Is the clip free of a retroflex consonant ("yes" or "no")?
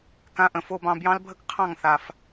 yes